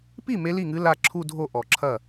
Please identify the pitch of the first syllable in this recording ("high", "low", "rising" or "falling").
falling